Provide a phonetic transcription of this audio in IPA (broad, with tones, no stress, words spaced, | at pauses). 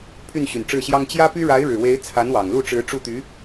pʰy˥˩nɕy˨˩nʈ͡ʂɻ̩˥˩ɕjɑ˥ŋ t͡ɕjä˥py˥ ɻa˧˥ɪ̯ ɻɻ̩˨˩we˧˥ɪ̯ t͡sʰa˧˥nwɑ˨˩ŋlu˥˩ʈ͡ʂɻ̩˧˥ ʈ͡ʂu˥˩t̪y˧˥